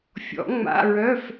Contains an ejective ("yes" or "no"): no